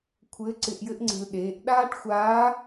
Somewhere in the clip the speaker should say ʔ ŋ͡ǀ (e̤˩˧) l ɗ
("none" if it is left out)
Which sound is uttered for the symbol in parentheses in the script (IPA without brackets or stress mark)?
e̤˧